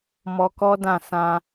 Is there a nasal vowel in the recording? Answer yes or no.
yes